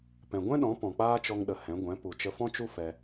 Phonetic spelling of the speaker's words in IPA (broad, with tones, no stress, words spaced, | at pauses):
pɛ̃˨ɡʷɛ̃˦ɗɔ̃˨˦ pɔ̃˨k͡paː˦t͡ʃɔ˧ŋɗə˨ hɛ̃˨˦ ɡʷɛ̃˨˦ pu˨t͡ʃə˧fɔ̃˦t͡ʃu˦ fɛ˧